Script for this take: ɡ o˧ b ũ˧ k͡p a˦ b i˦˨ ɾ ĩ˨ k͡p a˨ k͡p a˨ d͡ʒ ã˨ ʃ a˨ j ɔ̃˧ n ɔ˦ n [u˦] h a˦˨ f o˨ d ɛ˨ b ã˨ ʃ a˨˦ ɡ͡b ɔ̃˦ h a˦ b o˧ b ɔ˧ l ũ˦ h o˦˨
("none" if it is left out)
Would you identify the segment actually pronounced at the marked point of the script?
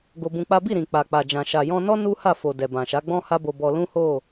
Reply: u˦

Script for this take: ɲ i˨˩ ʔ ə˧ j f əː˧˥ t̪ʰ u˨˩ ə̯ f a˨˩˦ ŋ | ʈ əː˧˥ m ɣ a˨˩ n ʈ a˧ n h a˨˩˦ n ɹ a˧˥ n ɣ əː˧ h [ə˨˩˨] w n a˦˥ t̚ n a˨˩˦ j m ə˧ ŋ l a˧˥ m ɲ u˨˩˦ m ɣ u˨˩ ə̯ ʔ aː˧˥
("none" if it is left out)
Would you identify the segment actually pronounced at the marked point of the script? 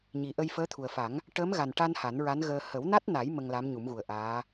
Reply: ə˨˩˦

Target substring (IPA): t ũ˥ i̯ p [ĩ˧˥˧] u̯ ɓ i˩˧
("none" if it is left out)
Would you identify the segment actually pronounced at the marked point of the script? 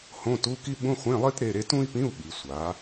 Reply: ĩ˧˥˧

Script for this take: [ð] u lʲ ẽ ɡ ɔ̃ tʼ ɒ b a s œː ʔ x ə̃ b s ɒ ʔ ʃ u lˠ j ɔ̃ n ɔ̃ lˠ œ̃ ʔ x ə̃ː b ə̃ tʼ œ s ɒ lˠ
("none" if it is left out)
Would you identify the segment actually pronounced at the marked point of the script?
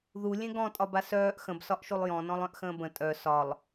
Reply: ð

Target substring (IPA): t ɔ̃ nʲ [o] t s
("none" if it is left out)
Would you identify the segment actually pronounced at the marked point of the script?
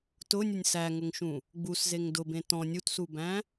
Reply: u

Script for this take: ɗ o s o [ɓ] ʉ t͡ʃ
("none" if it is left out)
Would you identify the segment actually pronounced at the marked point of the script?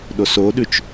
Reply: ɗ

